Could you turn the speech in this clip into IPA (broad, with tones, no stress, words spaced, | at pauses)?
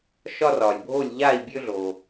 ʃɒ˦rɒ˩lʲbʱo˥˩lʲ ʎa˥˩i̯bʲø˦ɮo˩